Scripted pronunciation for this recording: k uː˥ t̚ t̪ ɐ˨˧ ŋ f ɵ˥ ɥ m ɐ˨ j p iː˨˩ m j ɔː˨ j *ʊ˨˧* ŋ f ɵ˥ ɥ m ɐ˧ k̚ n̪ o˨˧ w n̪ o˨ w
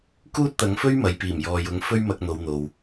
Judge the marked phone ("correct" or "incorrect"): correct